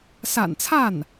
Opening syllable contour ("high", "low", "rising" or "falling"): low